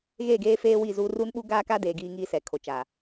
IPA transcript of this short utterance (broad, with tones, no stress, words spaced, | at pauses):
ɣeː˦˨ɡeː˦feː˦ wi˦˨zuː˦ ruː˦nɓu˦ ɡaː˦ka˦deː˨ ɡiː˦ŋiː˦sɛ˨ kʰo˨t͡ʃa˨